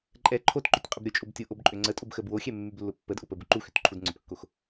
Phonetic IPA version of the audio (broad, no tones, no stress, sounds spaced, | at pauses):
ǃʼ ɛ ǃʰ o t ǃ ʏ tʲ qʼ ʏ b ɾʲ ʊ t͡ʃʼ o b tʲ ʊ ʔ o b ǃʼ ʏ ŋ͡ǀ ə tʼ o b x ə b w o xʲ ɛ mː y b lː ʊ pː ə d ʔ ʊ p ə b ʊ ǃ u x ʏ t ǃʰ u d ŋ͡ǀ ʏ p kː o x